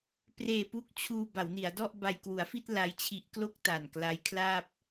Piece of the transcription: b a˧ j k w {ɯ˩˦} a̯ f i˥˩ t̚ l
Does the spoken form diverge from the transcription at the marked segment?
yes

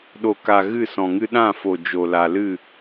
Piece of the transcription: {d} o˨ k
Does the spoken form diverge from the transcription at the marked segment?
yes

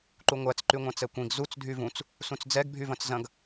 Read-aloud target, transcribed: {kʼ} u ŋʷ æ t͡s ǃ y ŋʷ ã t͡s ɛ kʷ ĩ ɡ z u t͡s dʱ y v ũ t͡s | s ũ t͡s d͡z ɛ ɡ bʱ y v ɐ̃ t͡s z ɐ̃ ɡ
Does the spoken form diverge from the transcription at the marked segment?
yes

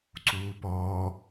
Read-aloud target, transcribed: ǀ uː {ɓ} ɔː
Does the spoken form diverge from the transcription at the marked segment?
yes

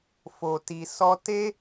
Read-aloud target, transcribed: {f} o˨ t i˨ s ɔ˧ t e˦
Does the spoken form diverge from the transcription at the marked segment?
no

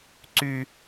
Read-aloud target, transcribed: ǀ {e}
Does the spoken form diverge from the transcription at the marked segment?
yes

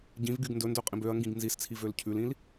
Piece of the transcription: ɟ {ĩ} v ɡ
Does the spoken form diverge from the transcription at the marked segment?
no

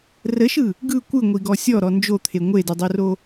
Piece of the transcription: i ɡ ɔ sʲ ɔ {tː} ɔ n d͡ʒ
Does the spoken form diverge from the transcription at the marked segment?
yes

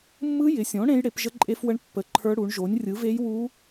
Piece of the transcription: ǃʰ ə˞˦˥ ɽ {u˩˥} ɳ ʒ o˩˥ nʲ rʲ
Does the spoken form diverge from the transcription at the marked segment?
no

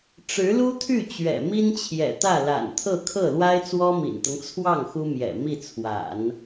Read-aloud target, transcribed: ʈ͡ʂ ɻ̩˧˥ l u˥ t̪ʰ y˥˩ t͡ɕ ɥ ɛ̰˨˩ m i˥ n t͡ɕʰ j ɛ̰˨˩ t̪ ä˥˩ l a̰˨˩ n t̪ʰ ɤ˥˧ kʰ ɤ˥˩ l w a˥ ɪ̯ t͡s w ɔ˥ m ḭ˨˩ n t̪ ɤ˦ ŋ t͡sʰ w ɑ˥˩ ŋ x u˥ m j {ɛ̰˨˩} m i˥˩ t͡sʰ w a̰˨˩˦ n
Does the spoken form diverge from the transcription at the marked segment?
no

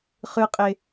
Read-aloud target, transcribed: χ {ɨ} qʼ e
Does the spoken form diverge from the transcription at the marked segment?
no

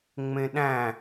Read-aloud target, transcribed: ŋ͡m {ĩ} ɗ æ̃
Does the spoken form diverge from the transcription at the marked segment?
yes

